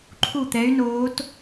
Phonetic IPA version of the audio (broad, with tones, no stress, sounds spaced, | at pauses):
ǃʰ u˥˩ t̪ ɛ˧˥ y̯ n oː˧˥ t